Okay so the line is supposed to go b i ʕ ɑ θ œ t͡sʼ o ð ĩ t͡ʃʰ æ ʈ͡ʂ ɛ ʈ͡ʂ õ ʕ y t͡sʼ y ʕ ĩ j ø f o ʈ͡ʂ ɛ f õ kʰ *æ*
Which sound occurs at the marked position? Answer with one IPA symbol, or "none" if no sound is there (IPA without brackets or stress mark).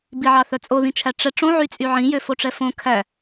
æ